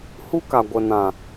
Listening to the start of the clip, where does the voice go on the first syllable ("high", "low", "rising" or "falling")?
high